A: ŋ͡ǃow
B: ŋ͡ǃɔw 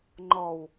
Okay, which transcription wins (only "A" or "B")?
B